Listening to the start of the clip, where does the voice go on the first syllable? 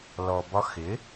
low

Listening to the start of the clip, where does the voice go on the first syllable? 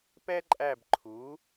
high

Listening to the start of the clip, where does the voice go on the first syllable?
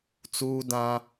high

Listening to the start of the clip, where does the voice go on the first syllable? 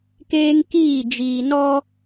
high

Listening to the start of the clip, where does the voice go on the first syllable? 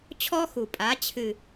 high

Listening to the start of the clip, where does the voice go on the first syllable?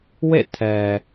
falling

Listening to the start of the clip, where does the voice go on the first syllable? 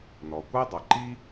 low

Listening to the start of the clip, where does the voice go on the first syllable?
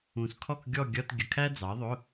low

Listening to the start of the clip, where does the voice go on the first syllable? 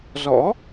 rising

